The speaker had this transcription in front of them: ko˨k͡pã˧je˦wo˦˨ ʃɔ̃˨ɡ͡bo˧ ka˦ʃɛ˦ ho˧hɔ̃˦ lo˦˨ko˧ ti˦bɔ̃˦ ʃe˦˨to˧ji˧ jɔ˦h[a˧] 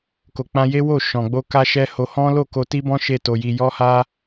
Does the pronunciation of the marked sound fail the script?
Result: yes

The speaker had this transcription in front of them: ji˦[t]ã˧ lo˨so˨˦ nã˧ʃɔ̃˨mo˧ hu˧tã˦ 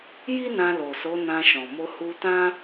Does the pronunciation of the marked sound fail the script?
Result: yes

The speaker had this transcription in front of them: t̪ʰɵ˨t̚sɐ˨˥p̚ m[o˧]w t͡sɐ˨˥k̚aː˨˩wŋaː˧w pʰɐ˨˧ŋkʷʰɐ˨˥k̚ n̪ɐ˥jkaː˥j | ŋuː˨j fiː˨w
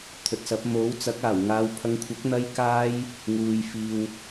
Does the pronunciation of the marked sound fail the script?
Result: yes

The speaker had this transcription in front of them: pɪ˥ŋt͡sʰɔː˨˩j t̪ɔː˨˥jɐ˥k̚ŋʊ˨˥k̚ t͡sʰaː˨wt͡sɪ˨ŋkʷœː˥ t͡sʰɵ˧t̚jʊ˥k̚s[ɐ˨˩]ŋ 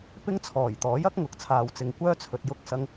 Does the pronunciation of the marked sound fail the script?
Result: yes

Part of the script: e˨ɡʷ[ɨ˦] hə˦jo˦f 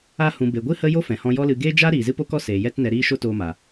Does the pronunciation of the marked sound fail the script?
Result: no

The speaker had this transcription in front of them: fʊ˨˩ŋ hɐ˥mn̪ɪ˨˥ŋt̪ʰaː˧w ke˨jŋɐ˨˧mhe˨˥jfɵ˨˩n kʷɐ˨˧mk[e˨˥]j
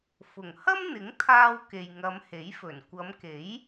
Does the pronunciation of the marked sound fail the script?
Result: no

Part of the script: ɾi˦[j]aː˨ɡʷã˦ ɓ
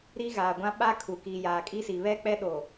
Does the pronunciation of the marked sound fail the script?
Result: yes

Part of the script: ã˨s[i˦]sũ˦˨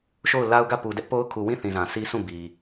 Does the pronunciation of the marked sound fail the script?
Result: no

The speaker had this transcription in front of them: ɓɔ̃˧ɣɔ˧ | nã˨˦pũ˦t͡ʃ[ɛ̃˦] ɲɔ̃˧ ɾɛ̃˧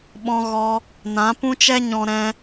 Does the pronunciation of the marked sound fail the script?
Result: yes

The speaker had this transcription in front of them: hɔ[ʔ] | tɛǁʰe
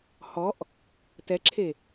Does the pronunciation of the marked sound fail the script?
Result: no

